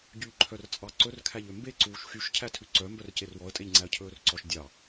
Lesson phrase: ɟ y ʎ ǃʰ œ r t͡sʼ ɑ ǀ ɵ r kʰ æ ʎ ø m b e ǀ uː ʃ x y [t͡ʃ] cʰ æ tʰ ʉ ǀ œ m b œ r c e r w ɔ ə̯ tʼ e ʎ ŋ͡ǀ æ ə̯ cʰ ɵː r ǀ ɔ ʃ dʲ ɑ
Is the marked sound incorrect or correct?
incorrect